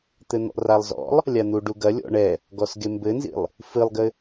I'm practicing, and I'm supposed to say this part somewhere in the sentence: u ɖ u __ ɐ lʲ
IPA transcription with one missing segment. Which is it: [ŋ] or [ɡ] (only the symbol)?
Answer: ɡ